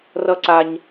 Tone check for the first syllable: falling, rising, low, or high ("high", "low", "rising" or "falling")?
high